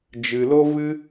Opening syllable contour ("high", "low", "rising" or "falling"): low